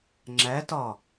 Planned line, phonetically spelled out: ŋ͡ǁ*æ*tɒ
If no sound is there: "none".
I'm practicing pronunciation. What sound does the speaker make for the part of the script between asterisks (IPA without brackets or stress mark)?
æ